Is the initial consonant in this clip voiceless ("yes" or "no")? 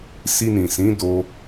yes